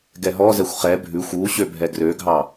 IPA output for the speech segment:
ɡ ɛ ɦ ɔ z ɛ xʷ χ ɛ bʱ ʉ xʷ u ɕ ø bʱ ɛ ɡ r ø ɡʱ ɑ

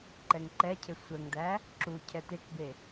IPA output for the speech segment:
ǃ ɛ ŋ ǃ ɛ cʰ e sʷ ɛ ŋ d̪ æ | ǁ u cʰ ɛ t̪ e k b e

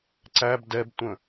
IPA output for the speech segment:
ǀ æ b d ɛ b tʷ ə̃

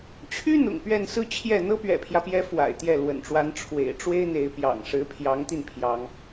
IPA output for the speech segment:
t͡ɕʰ y˥ n̪ ʊ̰˨˩ ŋ p ɥ ɛ˥˧ n s ɹ̩˥˧ t͡ɕʰ j ɛ˥˩ n̪ ɤ˥ p ɥ ɛ̰˨˩ pʰ j ä˦ p j ɛ˧˥ f w a̰˨˩ ɪ̯ t̪ j ɛ˥˩ l w ə̰˨˩ n ʈ͡ʂ w a˧˥ n ʈ͡ʂʰ w ḛ˨˩ ɪ̯ ʈ͡ʂ w e˥ ɪ̯ n̪ e˧˥ ɪ̯ p j ɑ̰˨˩ ŋ ʂ ɻ̩˧˥ pʰ j ɑ˧˥ ŋ t̪ i˧ n pʰ j ɑ˥ ŋ

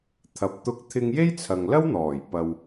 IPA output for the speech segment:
t̪ʰ ɐ˨ p̚ t̪ ʊ˧ k̚ t̪ʰ ɪ˧ ŋ j e˥ j t͡sʰ ɐ˨ ŋ l ɐ˥ w n̪ ɔː˨˩ j p ɐ˨ w

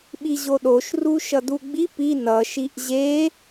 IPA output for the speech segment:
ɓ i ʑ o ɗ o ʃ r u ʃ ʌ d u ɡ͡b i p i n ʌ ʃ i ʔ ʑ e

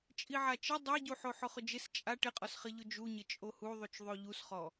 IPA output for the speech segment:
t͡ʃʼ i ʕ a t͡ʃ ɪ dˤ e ɟ u ħ o ħ ʊ χ ʊ d͡ʒ ɪ s t͡ʃʼ a ʈ ɪ qʼ ɔ s χ ɪ ʎ ʊ d͡ʒ u ɲ ɪ t͡ʃʼ o h u ðˤ u t͡ʃ ðˤ o ʎ u s χ ɔ

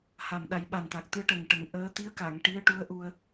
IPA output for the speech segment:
h a˨˩ m ɗ a˨˩˦ j ɓ a˨˩ n t̪ a˨˩ k̚ t̪ ɨ˧˥ ə̯ ʈ ə˨˩ ŋ ʈ ə˨˩˦ ŋ ʔ əː˧˥ t̪ i˧˥ ə̯ k a˨˩˨ ŋ ʈ i˧˥ ə̯ ʈ u˧˥ ə̯ ʔ u˧ ə̯

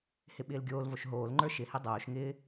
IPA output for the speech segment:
h ɪ ɓ ɪː l ɡʲ oː l v o ʃ ɦ oː l ŋ͡ǃ ə˞ ʃ ɪ h i dˤ oː ʃ ŋ ɪː

